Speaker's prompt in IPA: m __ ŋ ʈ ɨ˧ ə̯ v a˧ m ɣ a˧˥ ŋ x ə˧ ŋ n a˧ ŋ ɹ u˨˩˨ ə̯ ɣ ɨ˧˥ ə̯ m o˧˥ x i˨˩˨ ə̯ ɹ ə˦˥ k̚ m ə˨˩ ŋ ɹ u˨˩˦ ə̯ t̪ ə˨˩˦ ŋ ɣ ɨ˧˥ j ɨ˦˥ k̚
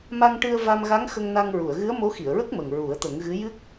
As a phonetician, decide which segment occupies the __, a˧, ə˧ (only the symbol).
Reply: a˧